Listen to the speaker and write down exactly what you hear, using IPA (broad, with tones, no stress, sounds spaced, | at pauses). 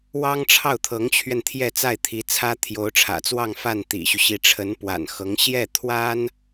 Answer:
w ɑ˥ ŋ ʈ͡ʂʰ ɑ˥˩ ʊ̯ t̪ʰ ɤ˧˥ ŋ t͡ɕʰ ɥ ɛ˧ n t̪ʰ j ɛ˥˧ t͡s a˥˩ ɪ̯ t̪ʰ i˧˥ t͡sʰ ä˥ t̪ʰ j o˧˥ ʊ̯ ʈ͡ʂʰ ä̰˨˩ t͡s w ɑ˥˧ ŋ f a˥˩ n t̪ ḭ˨˩ ɕ y˦ ɕ i˧˥ ʈ͡ʂʰ ə˧˥ n p w a̰˨˩ n x ɤ˧˥ ŋ ɕ j ɛ˥˩ t̪ʰ w a˥ n